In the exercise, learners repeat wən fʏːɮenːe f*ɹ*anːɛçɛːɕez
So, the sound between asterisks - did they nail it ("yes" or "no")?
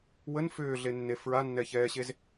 yes